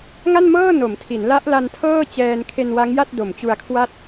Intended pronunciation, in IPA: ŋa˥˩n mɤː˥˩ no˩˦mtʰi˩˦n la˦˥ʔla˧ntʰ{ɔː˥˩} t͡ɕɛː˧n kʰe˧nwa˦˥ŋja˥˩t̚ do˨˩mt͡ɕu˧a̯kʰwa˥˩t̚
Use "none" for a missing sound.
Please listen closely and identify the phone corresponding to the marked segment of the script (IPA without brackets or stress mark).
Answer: ɤː˥˩